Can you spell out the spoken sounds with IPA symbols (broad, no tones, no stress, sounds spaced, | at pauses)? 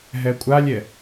ɦ ɛ kʷʼ a lʲ ɛ